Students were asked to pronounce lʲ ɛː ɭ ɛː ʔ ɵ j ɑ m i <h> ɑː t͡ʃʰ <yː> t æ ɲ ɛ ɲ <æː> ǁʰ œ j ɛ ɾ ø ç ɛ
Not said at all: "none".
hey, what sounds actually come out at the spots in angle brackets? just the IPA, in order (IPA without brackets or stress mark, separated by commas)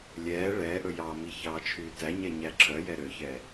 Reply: ç, yː, æ